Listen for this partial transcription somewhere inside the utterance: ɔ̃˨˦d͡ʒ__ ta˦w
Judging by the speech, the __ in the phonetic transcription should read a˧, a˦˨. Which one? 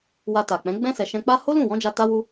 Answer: a˧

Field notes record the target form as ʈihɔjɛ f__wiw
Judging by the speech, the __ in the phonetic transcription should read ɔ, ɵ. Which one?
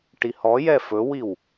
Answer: ɵ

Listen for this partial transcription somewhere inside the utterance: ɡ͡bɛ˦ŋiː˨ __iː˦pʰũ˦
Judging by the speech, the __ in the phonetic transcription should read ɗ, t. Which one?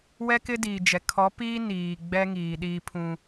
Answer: ɗ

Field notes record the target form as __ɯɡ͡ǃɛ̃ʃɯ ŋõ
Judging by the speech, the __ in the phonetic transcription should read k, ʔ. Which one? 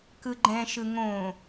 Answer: k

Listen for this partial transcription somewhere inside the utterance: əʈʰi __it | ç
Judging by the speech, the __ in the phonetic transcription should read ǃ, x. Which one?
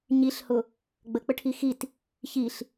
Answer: x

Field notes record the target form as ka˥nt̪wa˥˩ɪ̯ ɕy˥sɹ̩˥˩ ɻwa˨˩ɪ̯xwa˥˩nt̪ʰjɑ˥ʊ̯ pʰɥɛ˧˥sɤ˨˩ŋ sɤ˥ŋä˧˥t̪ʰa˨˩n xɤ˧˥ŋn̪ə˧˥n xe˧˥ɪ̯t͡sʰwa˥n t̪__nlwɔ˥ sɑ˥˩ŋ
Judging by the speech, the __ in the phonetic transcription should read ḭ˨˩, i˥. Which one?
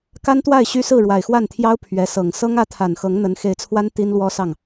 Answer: i˥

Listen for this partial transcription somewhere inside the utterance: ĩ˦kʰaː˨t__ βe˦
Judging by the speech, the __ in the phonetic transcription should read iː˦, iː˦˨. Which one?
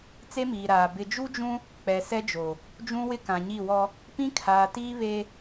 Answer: iː˦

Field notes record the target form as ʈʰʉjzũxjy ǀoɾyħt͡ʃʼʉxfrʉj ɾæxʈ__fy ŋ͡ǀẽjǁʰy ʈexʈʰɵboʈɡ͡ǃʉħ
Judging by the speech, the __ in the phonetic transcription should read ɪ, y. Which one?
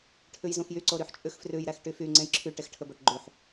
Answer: y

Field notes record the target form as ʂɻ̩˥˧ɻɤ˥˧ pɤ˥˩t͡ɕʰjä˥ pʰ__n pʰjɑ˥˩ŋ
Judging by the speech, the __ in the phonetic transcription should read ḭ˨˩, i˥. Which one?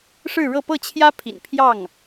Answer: ḭ˨˩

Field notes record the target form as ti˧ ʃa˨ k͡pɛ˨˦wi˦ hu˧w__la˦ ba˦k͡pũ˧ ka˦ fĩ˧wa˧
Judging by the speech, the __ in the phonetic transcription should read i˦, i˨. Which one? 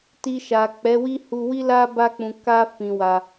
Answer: i˦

